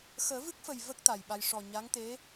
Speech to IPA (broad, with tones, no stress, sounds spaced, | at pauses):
x əː˨˩˦ v ɨ˦˥ k̚ f ə˨˩ j v ə˦˥ k̚ t̪ a˨˩ j ɓ a˧ j ʂ ɔ˨˩ ɲ a˧˥ ŋ t̪ e˧˥